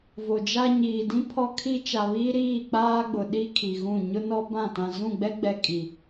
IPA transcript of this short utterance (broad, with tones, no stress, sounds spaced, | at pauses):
v o˨ d͡ʒ a˦ ɲ iː˨ d ĩ˦ pʰ ɔ˦ kʰ i˦ t͡ʃ a˨ β iː˦ ɾ iː˦˨ k͡p aː˦ ɡ͡b ʊ˨ ɗ i˦ kʰ i˨ ɣ ũ˦˨ ɲ ʊ˦ n ɔ˦ b ã˦˨ t ã˨ z ũ˦˨ ɡ͡b ɛ˦ ɡ͡b ɛ˨ kʼ i˨